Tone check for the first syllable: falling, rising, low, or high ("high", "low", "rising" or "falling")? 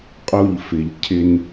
falling